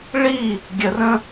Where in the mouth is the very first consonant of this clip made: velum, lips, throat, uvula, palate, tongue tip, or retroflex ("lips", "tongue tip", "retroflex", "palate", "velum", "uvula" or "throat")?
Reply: retroflex